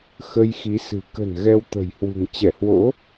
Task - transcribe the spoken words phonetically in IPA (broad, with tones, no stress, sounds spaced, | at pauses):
x ə˧ j x i˨˦ s ɨ̤˨˩ k ə̤˨˩ n ɣ ɛ˧ w t̪ ə̤˨˩ j h w ṳ˨˩ ŋ t͡ɕ ɛ˧˩ h w o̰˧˥